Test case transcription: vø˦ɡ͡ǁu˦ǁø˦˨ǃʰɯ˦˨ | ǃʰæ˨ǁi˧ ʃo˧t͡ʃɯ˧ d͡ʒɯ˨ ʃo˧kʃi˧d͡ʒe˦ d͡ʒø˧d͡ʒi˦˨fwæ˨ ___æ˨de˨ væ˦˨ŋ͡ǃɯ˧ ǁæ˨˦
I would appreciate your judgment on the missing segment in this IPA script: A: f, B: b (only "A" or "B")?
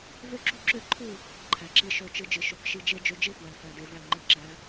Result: A